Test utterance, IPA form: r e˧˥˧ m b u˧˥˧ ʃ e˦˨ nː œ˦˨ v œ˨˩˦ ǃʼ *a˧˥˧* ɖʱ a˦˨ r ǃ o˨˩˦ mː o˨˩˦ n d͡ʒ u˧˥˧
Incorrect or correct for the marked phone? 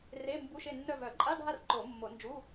correct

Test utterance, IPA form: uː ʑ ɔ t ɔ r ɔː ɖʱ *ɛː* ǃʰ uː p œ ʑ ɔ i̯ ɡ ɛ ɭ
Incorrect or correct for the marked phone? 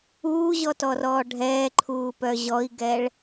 correct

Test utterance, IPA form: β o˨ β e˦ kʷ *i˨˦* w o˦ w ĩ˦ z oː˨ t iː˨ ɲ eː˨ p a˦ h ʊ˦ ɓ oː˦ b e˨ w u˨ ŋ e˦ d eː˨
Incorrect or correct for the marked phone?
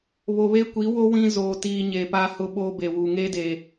correct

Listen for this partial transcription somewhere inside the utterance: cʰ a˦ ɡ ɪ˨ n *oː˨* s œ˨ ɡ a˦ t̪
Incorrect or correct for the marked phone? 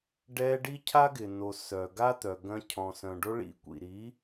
incorrect: o˨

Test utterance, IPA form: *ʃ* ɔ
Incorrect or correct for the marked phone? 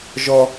incorrect: ʒ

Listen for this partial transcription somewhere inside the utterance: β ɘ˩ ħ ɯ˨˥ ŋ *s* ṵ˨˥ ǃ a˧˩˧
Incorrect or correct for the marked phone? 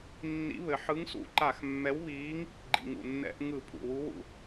correct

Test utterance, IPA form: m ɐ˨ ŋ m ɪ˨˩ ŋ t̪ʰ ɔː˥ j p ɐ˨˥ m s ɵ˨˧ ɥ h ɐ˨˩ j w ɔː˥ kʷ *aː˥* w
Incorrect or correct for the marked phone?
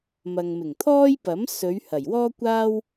correct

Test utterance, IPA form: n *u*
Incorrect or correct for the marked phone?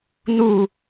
correct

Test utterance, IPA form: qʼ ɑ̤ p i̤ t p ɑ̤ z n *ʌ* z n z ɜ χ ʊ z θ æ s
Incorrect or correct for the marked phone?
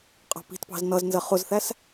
correct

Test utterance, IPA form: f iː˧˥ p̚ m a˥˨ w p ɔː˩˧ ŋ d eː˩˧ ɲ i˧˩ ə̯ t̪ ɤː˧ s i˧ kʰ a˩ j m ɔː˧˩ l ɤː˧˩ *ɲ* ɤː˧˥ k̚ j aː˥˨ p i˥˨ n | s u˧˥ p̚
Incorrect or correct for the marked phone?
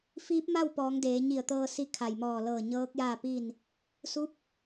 correct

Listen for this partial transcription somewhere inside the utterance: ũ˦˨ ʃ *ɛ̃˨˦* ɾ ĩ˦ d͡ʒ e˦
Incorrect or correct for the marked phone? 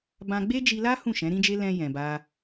correct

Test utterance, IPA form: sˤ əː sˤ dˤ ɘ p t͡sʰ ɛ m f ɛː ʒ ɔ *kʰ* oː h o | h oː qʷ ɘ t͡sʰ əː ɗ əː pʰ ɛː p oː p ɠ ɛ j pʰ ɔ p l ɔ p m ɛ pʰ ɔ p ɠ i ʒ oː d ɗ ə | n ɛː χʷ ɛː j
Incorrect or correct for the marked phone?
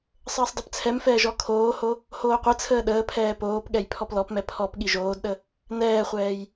correct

